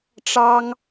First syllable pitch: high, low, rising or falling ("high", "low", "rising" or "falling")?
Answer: high